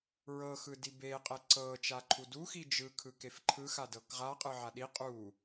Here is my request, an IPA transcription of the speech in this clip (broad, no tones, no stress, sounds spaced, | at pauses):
ɹ ɤ x ɯ d i b e qʼ ɛ ǀ ɤ t͡ʃ a ǃʰ u d u x i d͡ʒ ɯ kʰ ɯ k e f ǃʰ ɯ x a d ɤ k ʁ a qʼ ɯ ʕ a ɗ i qʼ u